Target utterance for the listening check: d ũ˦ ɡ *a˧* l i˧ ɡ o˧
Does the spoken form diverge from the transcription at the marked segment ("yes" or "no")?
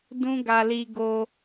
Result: no